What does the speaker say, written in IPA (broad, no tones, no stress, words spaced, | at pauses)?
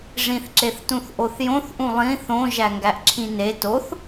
ʐĩθǁeθtũθ ʔoθjõθʔũ lˠĩ θõ ʒæŋɡæʔǁʰĩne toθ